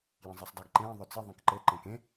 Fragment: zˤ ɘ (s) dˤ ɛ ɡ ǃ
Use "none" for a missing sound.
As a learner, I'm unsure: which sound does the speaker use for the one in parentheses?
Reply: sˤ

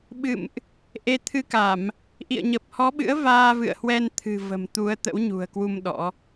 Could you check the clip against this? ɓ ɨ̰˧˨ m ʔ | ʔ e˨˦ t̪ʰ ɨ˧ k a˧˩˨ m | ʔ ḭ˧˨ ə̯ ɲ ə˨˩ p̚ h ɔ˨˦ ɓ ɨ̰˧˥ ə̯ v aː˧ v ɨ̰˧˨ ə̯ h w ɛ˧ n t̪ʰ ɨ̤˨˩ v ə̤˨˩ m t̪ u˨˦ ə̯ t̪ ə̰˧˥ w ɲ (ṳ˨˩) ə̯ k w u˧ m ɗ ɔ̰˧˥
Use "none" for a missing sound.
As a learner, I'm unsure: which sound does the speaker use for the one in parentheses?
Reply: ṳ˨˩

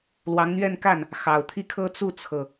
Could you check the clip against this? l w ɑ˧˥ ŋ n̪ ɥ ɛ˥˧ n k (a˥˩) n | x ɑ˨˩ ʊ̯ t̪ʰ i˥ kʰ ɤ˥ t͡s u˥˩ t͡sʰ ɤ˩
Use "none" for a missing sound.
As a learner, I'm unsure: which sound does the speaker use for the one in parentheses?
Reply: a˥˩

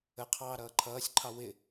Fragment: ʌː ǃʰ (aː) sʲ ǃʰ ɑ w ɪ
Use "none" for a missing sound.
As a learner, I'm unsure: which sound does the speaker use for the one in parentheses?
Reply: ʌː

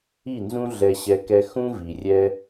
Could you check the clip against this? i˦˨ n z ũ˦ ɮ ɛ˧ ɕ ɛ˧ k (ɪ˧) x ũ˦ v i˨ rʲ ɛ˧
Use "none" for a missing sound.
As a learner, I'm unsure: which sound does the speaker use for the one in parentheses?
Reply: ɛ˧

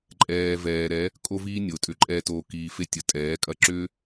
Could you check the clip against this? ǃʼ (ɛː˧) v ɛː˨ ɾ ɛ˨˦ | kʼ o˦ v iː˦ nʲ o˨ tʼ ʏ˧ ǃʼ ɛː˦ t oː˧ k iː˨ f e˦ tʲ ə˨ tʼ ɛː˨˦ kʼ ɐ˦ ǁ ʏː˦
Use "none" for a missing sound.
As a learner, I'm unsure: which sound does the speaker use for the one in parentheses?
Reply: ɛː˧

